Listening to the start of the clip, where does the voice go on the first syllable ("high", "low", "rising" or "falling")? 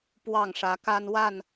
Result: falling